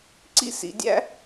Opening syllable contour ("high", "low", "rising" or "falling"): high